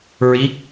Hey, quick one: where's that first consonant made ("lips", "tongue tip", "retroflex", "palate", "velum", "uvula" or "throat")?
tongue tip